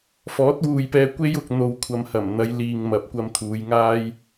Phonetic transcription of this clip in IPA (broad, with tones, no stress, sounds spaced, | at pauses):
f ɔː˨˥ t̚ w uː˨ j p ɛː˧ kʷ e˧ j ʊ˨ k̚ n̪ o˨ w kʷʰ ɐ˨ m h ɐ˨˩ m n̪ ɐ˨˧ j l iː˨ ŋ m ɐ˨ p̚ kʷ ɐ˧ m t̪ʰ uː˨˧ j ŋ aː˥ j